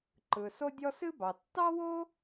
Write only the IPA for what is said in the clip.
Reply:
ǃ ɯ˩ s o˥ dʲ ɔ˥ s ɨ˥ b ɑ˩ tː ɑ˥ w o˥

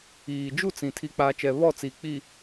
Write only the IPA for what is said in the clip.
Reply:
iː˨ d͡ʒ u˦˨ t͡s ĩ˨ tʰ i˨ k͡p aː˨ t͡ʃ ɛ˨ β ɔ˦˨ t͡s i˨ k͡p i˨

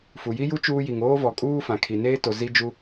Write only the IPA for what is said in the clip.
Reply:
f u˨ j i˦ j u˦ t͡ʃ uː˦ j i˨ ŋ oː˦ v ɔ˨ kʼ uː˦ f ã˨ kʰ i˨ n eː˦ t o˨ z i˦ d͡ʒ u˦

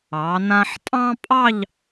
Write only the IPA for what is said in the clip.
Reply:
ɑ˩˧ n ã˧ ħ tʼ ɑ̃˥ pʼ ɑ˥˧ ʎ

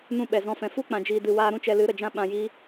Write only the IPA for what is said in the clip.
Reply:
n ũ˧ ɓ ɛ˨ z ɔ̃˧ f ɛ̃˨ f u˦ k͡p ã˨ d͡ʒ iː˨ d ɨ˨ w aː˧ ɾ ũ˦ t͡ʃ ɛ˧ l ɨ˨˦ ɾ ə˨ d͡ʒ ã˦ ɓ ã˨ j iː˧

